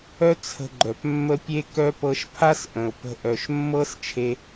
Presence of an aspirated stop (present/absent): present